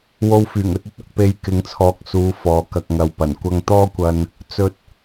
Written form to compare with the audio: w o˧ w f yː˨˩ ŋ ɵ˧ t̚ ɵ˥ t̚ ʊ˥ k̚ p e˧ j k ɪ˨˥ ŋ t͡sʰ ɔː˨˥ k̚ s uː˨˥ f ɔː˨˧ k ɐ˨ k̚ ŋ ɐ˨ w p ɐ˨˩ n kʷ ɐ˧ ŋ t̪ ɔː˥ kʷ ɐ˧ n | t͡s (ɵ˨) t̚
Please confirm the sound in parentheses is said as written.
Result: yes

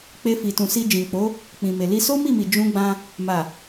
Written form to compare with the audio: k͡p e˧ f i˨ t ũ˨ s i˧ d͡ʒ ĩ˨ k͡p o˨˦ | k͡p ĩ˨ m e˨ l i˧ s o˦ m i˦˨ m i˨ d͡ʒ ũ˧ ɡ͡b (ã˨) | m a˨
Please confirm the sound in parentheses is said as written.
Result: no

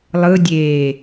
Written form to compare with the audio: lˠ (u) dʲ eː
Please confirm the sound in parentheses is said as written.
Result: no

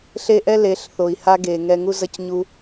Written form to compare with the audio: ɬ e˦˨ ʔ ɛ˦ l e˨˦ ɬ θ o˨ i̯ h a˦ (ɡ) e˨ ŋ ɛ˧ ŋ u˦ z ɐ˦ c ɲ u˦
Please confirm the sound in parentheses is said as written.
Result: yes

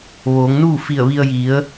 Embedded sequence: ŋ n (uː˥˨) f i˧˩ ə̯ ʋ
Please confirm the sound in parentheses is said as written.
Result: yes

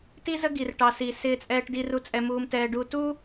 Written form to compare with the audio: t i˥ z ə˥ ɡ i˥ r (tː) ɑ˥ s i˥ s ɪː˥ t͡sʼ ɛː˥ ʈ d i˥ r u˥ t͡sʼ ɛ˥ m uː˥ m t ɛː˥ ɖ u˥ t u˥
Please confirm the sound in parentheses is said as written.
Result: no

